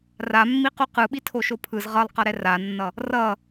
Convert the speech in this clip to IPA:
r a mː i q u q ɯ ɓ i tʰ o ʃ o pʰ ɯ z ʁ ʌ lˠ q ʌ ɾ ɛ r a nː ʌ | r ʌ

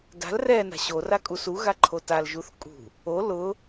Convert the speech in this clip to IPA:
d a̤ l r ɛ n a̤ ɕ o r a kʼ u s u ɣ a ǃʰ o t a l ʒ u θ kʼ ṳ | o l ʊ

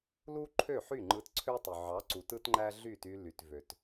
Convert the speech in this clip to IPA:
l u˦ ǃʰ ø˦˨ ħ y˦˨ ŋ͡ǃ ɯ˧ t ǀʰ ø˦ tˤ y˨ ʕ ɑ˨˦ ǀ u˨ t ɯ˦ t ŋ͡ǃ æ˦ ɮ y˦˨ t y˧ l y˨ t v ø˨ t

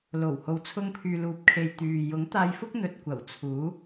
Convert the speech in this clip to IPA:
l o˨˩ w h o˨ w t͡sʰ ʊ˧ ŋ pʰ yː˨ l uː˨ p̚ kʰ e˨ j t̪ yː˨ j ʊ˨˥ ŋ t̪ aː˧ j f ʊ˥ k̚ n̪ ɵ˨ t̚ kʷ ɐ˨˩ w t͡sʰ uː˨˥

